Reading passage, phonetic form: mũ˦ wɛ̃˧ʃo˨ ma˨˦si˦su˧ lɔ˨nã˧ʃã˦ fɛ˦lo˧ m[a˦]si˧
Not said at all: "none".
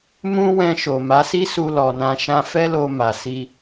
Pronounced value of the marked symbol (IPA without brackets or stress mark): a˨